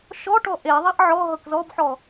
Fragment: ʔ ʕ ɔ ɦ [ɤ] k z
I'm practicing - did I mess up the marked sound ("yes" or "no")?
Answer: no